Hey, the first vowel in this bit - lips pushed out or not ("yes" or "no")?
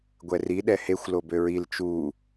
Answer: no